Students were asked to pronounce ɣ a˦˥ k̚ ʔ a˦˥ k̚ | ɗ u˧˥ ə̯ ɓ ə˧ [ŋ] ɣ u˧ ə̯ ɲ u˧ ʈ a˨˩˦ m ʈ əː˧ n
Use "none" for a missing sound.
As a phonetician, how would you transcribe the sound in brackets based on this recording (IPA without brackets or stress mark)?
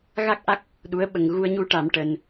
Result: ŋ